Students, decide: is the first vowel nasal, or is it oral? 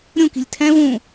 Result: nasal